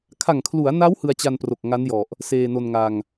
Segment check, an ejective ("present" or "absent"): absent